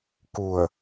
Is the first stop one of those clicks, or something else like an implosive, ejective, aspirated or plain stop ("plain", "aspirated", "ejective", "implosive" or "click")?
plain